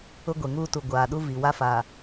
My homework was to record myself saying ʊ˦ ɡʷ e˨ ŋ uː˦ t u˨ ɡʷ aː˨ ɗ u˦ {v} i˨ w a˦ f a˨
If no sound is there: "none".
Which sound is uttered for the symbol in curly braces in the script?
v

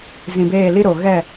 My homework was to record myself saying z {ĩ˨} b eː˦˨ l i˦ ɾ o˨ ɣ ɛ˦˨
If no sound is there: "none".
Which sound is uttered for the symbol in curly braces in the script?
ĩ˨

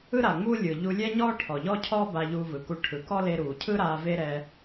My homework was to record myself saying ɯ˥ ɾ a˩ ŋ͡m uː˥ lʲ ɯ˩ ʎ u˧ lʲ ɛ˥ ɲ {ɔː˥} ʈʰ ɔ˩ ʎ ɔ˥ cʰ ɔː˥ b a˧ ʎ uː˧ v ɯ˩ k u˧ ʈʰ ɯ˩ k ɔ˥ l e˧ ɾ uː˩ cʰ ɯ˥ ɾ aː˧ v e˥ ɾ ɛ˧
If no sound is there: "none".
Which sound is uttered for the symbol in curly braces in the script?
ɔː˥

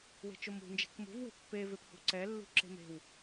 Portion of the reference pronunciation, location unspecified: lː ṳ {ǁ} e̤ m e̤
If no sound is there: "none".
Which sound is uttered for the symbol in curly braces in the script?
ǁ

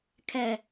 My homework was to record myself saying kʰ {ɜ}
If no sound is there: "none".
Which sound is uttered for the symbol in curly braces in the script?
ɛ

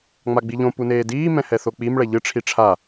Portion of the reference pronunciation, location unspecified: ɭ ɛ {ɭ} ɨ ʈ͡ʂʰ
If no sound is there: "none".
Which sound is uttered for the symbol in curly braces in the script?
ʎ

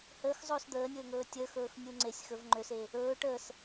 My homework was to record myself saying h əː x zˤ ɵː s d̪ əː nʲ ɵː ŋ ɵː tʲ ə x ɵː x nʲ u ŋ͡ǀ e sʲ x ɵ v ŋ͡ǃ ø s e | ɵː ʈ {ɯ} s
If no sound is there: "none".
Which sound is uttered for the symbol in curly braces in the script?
ə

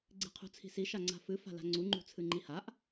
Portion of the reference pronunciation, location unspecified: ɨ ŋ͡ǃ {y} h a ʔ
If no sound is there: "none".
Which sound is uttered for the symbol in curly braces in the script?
i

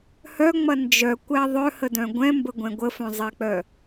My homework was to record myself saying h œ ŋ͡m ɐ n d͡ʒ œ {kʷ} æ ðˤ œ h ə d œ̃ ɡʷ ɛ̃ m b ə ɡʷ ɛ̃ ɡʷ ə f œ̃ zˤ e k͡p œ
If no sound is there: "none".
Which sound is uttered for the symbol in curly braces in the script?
kʷ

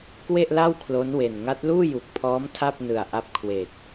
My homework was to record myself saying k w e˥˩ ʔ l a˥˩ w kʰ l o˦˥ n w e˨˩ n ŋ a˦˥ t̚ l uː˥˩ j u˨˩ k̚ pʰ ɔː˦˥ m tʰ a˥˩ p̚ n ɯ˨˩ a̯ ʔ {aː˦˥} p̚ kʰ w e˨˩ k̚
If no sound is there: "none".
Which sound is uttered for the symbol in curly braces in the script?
a˦˥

